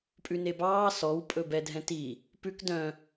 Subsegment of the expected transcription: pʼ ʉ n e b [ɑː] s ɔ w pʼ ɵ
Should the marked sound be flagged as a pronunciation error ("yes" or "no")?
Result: no